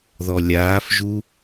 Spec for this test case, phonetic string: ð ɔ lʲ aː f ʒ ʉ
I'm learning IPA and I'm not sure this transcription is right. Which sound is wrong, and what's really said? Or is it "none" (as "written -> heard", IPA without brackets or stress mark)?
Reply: ʉ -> u